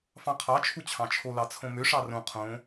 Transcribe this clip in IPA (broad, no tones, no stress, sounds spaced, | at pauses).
f ɑ̃ qʰ ɑ t͡ʃʰ u t͡ɕʰ ɑ̃ t͡ʃʰ o l ɑ t͡sʰ õ m ø ʂ ɑ r õ qʰ õ